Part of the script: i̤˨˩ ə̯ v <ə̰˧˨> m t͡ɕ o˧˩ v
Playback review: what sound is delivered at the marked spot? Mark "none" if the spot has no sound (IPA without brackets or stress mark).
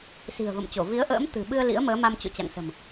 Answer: ə̰˧˨